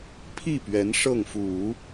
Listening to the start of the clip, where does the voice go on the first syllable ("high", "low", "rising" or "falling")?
falling